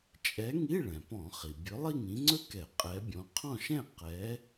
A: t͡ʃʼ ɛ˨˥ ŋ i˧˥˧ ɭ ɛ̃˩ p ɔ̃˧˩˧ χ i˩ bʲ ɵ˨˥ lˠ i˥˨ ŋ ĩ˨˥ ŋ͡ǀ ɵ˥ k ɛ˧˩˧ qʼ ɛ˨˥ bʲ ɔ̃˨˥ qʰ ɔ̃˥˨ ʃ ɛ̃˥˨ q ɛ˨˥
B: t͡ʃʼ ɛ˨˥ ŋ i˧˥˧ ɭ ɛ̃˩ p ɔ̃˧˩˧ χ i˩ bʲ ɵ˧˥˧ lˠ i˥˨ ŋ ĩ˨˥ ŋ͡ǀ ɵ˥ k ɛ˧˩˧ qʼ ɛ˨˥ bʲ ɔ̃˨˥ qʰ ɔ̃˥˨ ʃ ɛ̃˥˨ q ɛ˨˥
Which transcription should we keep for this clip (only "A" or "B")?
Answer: A